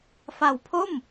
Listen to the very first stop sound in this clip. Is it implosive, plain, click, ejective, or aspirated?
aspirated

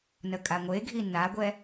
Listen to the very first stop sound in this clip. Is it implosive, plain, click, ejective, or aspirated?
ejective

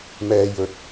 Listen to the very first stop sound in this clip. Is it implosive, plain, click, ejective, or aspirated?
plain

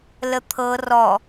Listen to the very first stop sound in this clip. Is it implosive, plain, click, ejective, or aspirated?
aspirated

